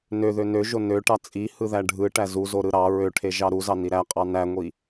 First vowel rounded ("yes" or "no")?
yes